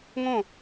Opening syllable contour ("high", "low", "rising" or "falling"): falling